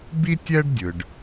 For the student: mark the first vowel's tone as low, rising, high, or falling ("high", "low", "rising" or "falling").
high